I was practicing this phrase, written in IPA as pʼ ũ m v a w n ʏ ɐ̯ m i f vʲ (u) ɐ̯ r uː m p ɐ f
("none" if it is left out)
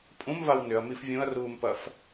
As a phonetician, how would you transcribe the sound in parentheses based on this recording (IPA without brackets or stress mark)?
ũ